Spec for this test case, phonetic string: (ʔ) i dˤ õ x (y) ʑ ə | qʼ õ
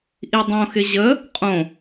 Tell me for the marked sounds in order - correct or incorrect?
correct, incorrect

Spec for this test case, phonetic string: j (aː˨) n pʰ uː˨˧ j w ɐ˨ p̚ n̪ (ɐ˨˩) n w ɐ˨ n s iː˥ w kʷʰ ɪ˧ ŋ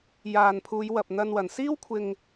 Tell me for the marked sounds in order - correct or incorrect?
correct, incorrect

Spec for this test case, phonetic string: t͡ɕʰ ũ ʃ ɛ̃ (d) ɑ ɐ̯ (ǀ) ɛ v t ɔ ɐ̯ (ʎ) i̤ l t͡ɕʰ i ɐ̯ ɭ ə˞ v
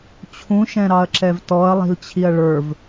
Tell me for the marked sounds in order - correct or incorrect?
incorrect, incorrect, incorrect

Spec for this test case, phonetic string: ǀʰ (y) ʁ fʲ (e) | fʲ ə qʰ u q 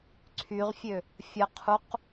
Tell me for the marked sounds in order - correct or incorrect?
correct, incorrect

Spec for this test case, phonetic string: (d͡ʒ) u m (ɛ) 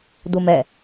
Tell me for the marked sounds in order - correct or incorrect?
incorrect, correct

